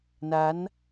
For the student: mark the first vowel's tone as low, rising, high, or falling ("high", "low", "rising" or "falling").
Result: rising